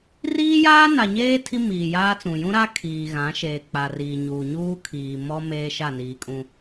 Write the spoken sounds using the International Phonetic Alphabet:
r iː˦ j aː˦ n a˨ ɲ eː˦ tʰ i˦ m iː˨ j aː˦ t͡s ũ˨ j ũ˦ ɾ a˦ kʰ iː˨ ɣ ã˨˦ ʃ eː˨ k͡p a˨ r iː˨ ɲ uː˨ ɲ uː˦ kʰ iː˨ m ɔ˦ m eː˦ ʃ a˦˨ n iː˨ kʼ ũ˦

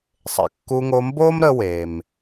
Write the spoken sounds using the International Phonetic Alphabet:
sˤ ḛ˩ kː u˧ ŋ o˧ m b oː˥ m ɾ ə˧ w eː˩ m

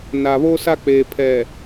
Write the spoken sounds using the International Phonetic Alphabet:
n a˨ β o˦ s a˦ k͡p eː˨ pʰ ɛ˨

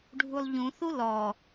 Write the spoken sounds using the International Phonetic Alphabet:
ɖʱ u lˠ ʎ ũ θ u l ɔ

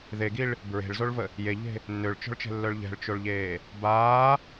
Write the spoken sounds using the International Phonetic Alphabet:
ð e ɡ i ɭ | b ɹ e̤ ɭ z o ɭ v ə | j e ʎ e̤ | nː ø ɭ t͡ʃ ɔ̤ ɭ t͡ʃ ɛ̤ lː œ ɭ ʎ ɛ̤ ɭ t͡ʃ o ɭ ʎ eː | b aː

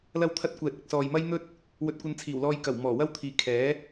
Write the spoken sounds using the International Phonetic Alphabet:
l ɐ˥ w t̪ʰ ɐ˥ t̚ kʷ ɛː˨ t̚ ɪ˨ k̚ s ɔː˨ j m ɐ˥ j n̪ ɵ˥ t̚ | w ɵ˧ t̚ kʷ ɐ˧ n t͡sʰ iː˨˩ w l ɔː˧ j k ɐ˨˩ w m ɔː˨˩ w ɐ˥ w t̪ʰ iː˨ kʰ ɛː˨˥

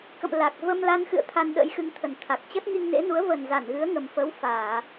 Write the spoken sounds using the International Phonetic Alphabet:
k ə̰˧˨ m l a˨˩ k̚ v ə˧ m l a˧ n x ɨ̰˧˨ ə̯ t̪ʰ a˧ n ɗ ə̰˧˥ j x ɨ˨˦ ŋ t̪ʰ ə˨˩ n t̪ʰ a˨˩ k̚ t͡ɕ ə˦˥ t̚ ŋ i˧ ŋ n ḛ˧˥ n u˨˦ ə̯ v ə˨˩ n z a˧˩ n ɣ ɨ˨˦ ə̯ ŋ ə˨˩ m f ə˨˦ w f aː˧˩˨

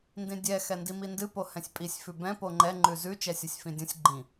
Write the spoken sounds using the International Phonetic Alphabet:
n d ĩ dʲ ɛ x ɛ n d i m i n d ɨ p o h ɛ̃ sʲ pʼ i sʲ f ʉ b ɛ̃ p o ŋ͡ǃ ɛ ŋ͡ǃ ʉ z ʉ t͡ʃ ɛ sʲ o sʲ f ĩ dʲ õ sʲ ɡ͡ǃ ĩ

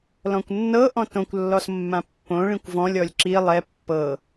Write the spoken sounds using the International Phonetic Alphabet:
l ɔ̃ kʷ nː ɤ ʔ ɔ̃ t õ kʷ lː ɔ s mː ã pː õ ɭ ĩ kʷ v ɔ̃ lʲ ɔ lʲ ǁ i lˠ ɛ pː ɤ

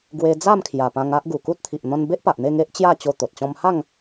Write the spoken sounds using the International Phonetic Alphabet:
ɡ w e˧ d͡z a˥˧ m kʰ j a˨˩ p ã˧ ŋ a˦ ʔ ɡ u˨˩ k u˦ t̚ t̪ʰ i˨ ʔ n̪ ɔ̃˧ n b e˦ ʔ p a˨ ʔ n̪ e˥˧ ŋ e˦ ʔ t͡ɕ j a˥˧ t͡ɕ o˧ t̪ o˨ t̚ t͡ɕ ɔ̃˦ m h a˥˧ ŋ

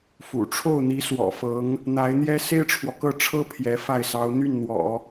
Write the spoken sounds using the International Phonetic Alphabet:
f ṵ˨˩ ʈ͡ʂʰ o˥˩ ʊ̯ n̪ i˧˥ s w ɔ̰˨˩ f ɤ˧˥ ŋ | n̪ a˧˥ ɪ̯ n̪ j ɛ˥ s e˥ ɪ̯ ʈ͡ʂʰ w ɔ˨ k ɤ˥˩ ʈ͡ʂʰ ɤ˥ pʰ j ɛ˧˥ f a˥˩ ɪ̯ s ɑ˧˥ ʊ̯ n̪ y˥˩ n n̪ w ɔ̰˨˩˦

